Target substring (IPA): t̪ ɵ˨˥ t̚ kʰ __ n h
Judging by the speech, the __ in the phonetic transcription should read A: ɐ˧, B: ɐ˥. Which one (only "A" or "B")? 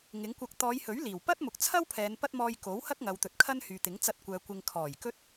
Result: B